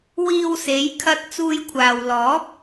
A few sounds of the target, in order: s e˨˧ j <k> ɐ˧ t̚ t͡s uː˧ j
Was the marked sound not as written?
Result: yes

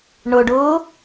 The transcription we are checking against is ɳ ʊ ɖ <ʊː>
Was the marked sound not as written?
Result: no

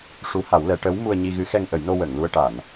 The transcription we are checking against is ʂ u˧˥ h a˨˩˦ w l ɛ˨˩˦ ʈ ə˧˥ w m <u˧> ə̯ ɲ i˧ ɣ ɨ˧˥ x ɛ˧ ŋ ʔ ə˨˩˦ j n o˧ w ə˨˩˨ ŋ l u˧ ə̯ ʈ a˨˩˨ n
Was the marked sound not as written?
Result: no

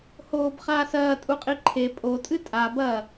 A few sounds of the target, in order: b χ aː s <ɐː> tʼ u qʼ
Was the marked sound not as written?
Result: no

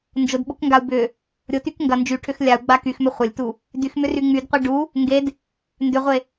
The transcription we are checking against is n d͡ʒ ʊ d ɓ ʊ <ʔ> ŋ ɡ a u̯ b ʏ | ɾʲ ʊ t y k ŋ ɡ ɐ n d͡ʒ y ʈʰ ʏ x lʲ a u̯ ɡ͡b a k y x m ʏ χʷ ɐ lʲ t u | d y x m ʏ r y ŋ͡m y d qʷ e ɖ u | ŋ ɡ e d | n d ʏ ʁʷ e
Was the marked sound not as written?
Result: yes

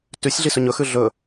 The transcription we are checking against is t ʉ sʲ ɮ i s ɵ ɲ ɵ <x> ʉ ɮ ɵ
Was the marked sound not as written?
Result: no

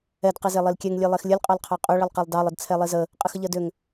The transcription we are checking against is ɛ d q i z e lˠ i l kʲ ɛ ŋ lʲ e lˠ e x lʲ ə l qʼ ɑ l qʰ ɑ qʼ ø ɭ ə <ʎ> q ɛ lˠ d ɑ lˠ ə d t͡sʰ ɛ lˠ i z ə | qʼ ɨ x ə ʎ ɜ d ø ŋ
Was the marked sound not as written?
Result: yes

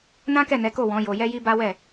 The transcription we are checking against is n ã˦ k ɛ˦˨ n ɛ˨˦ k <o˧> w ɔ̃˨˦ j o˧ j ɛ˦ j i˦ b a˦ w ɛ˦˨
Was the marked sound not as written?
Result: yes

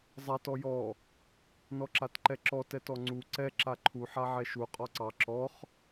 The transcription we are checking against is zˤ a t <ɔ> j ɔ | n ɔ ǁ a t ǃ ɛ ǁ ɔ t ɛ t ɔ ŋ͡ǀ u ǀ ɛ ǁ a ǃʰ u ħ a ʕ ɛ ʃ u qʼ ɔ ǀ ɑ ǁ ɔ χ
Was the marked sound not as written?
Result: no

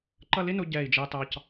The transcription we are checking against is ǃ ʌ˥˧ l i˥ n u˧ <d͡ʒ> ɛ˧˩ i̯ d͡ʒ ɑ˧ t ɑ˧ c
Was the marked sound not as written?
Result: yes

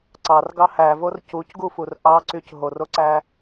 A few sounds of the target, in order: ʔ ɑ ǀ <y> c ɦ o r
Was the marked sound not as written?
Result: no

